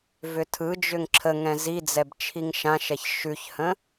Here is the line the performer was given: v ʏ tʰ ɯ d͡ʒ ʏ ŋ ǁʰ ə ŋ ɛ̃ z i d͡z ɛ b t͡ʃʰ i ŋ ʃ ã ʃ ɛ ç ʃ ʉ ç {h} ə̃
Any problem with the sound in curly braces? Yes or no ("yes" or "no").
no